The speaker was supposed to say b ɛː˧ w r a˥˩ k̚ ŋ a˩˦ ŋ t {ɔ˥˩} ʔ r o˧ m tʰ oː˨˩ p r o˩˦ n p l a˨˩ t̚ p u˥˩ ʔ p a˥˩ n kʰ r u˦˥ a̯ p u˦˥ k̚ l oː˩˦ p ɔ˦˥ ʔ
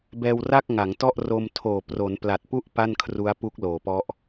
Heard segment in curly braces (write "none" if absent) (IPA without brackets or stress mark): ɔ˥˩